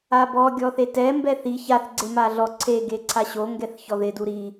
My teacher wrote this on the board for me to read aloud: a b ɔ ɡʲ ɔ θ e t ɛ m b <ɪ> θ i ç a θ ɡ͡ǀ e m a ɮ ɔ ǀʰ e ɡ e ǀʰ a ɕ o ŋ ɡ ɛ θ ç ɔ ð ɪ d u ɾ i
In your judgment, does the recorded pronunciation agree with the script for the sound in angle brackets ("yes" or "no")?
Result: no